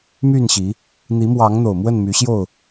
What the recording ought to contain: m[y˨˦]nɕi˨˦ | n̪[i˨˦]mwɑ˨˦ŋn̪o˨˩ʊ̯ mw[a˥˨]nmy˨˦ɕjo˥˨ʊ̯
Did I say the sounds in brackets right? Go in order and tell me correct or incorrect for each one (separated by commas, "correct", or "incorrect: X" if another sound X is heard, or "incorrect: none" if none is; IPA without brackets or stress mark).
incorrect: y˥˨, correct, incorrect: ə˥˨